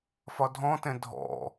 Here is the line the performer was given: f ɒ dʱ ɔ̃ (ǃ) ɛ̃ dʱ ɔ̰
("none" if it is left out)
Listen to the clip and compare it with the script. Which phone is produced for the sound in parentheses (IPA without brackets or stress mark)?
t